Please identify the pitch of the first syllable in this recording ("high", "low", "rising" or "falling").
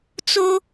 high